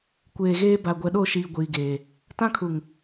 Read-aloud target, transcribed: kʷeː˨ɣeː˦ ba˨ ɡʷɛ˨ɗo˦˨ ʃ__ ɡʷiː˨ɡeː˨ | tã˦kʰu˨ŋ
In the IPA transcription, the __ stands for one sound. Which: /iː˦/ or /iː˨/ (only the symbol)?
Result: iː˨